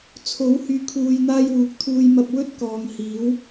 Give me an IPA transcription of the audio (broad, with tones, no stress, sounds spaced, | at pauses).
t͡sʰ o˨˥ w h yː˨ kʰ uː˨ j n̪ aː˧ j w uː˨˥ k̚ t̪ʰ uː˧ j m ɐ˧ p̚ w ɵ˥ t̚ k ɔː˨ ŋ h iː˨˥ w